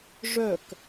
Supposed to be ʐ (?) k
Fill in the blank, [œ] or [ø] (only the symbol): œ